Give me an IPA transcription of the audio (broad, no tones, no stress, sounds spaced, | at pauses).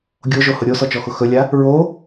ɡʲ o ʒ o h ʊ ɾʲ o s ɔ t͡ʃ ɔ x ʊ x ɵ lʲ a | ɹ o